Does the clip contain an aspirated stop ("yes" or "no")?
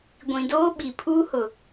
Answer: yes